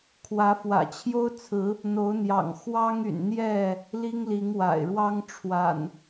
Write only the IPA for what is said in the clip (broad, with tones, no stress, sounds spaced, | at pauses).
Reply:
kʰ w ä˨˦ f w ä̰˨˩ t͡ɕʰ j o˦ ʊ̯ t͡sʰ ɹ̩˨˦ | n̪ o˨˦ ʊ̯ n̪ j ɑ̰˨˩ ŋ x w ɑ˦ ŋ y̰˨˩ n n̪ j ɛ˥˨ | l i˦ ŋ l i˨˦ ŋ w a̰˨˩ ɪ̯ ɻ w ɑ˦ ŋ ʈ͡ʂʰ w a̰˨˩ n